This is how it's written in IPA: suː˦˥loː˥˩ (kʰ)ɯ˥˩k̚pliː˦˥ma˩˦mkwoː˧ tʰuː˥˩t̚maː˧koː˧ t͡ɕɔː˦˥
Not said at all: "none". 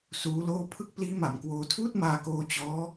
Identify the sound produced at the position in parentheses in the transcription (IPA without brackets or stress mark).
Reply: pʰ